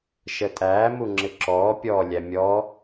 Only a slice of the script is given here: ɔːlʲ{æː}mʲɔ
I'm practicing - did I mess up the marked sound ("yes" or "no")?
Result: yes